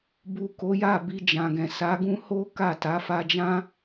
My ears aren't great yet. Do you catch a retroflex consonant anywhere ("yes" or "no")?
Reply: no